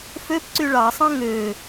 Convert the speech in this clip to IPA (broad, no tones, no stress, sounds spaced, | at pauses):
f ø p ǀ y ɭ ɑ sˤ ẽ ŋ ø